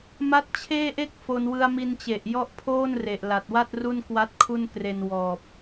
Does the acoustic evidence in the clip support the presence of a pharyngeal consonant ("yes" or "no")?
no